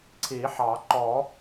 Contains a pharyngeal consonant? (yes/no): yes